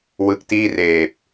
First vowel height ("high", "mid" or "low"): high